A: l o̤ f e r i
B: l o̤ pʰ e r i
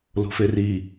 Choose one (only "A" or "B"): A